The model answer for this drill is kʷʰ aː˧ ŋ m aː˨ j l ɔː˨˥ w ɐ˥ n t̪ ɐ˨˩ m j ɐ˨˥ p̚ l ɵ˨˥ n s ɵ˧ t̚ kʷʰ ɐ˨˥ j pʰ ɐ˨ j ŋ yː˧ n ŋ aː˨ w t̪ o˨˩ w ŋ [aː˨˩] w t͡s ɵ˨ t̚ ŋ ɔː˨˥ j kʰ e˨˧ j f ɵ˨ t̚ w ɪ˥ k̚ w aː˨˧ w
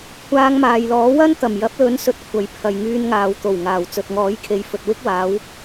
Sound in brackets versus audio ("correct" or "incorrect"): correct